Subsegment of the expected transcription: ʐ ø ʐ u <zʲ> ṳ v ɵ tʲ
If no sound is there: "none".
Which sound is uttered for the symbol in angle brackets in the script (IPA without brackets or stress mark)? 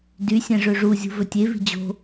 zʲ